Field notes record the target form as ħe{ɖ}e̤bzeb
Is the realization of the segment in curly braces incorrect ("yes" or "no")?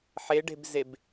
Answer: no